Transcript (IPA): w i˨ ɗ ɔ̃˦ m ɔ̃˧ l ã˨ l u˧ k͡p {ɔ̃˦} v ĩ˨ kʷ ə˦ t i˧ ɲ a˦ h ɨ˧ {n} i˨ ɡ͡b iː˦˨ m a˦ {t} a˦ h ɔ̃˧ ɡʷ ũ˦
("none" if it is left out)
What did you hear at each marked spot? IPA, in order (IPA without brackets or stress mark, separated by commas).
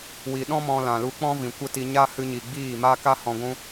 ɔ̃˦, ɲ, k